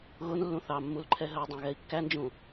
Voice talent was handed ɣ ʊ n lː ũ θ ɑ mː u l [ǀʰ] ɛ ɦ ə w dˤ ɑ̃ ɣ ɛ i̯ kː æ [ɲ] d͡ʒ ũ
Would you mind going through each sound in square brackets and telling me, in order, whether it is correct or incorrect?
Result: incorrect, incorrect

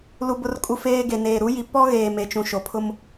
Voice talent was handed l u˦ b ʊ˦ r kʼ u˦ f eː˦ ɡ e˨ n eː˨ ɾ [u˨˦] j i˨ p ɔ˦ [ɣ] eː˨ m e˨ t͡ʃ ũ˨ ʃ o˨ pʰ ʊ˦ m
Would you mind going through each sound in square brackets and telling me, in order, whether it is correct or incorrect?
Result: correct, correct

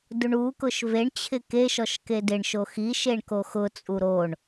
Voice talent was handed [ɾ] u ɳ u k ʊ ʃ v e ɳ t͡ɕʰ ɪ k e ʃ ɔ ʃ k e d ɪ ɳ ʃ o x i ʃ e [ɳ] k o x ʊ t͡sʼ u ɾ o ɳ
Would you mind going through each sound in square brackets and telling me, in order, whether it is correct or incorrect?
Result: incorrect, correct

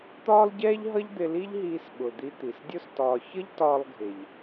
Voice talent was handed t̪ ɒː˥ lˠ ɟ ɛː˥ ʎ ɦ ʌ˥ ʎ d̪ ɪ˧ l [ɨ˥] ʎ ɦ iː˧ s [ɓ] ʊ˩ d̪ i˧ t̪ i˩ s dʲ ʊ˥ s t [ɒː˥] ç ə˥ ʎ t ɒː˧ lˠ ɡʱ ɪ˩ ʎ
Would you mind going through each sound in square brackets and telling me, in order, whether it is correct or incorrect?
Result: incorrect, correct, incorrect

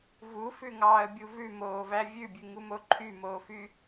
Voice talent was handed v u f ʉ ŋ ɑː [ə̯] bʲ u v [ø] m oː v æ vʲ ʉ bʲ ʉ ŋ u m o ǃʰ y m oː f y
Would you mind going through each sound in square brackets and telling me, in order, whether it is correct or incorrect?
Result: correct, incorrect

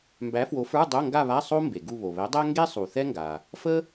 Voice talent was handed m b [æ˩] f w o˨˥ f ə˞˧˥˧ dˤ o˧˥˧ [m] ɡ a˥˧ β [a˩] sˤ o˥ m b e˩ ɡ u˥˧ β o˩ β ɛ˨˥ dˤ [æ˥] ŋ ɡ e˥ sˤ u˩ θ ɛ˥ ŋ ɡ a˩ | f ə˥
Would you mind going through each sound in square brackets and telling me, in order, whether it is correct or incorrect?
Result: incorrect, incorrect, incorrect, correct

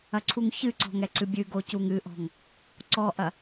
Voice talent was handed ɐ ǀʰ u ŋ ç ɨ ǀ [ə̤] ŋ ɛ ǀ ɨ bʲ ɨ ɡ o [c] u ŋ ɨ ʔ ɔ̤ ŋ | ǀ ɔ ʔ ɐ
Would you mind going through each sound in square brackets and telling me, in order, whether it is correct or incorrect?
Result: incorrect, correct

